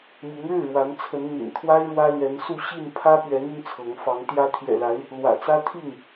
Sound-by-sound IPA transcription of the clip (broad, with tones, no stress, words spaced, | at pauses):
mi˨˦ŋɻɻ̩˥˨ɻwa˨˦nt͡sʰə˨˦n n̪ḭ˨˩nt̪ʰwa˦ɪ̯ ɻwä˦ lɥɛ˨˦nsu˥˨ ɕi˥˨n pʰä˦ pɥɛ˨˦n̪y˧n t͡sʰɤ˨˦ŋ fɑ˨˦ŋ t̪jä˨˦t̪ʰjɛ̰˨˩la˨˦ɪ̯ | lwä̰˨˩t͡sä˦t̪ʰi˥˨ŋ